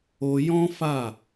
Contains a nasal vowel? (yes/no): yes